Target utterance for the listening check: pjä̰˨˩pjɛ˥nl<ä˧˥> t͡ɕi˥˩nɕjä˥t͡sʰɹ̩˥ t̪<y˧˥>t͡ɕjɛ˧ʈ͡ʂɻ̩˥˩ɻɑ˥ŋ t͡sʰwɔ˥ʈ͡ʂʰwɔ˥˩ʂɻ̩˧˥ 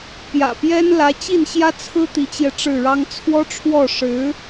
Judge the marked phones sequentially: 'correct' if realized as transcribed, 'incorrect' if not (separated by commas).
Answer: correct, incorrect